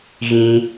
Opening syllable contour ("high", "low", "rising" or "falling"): high